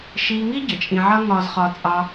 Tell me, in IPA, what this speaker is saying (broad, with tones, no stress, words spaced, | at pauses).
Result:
ʃiː˧ŋi˥ ɟə˩t͡ʃʼĩ˧ʕʌ˥ ŋɒː˧zχɒ˧ t͡sʼɑ˧